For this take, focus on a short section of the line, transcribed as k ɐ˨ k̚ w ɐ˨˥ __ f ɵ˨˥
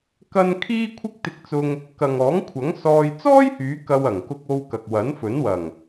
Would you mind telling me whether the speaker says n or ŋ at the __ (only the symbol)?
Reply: n